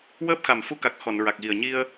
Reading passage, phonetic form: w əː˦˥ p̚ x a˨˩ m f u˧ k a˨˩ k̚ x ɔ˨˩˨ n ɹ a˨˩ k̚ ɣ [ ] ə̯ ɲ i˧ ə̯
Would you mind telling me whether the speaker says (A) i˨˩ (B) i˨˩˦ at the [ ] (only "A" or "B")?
A